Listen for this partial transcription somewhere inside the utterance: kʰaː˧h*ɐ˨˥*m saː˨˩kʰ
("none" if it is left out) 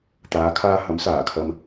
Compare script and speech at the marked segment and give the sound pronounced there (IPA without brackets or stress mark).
ɐ˨˥